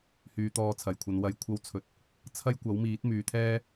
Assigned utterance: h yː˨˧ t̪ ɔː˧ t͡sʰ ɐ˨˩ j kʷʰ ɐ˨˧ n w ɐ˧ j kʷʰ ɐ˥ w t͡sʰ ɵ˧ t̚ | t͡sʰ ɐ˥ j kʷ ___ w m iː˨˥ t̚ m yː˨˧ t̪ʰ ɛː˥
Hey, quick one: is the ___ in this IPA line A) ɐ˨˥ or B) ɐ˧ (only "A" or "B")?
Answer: A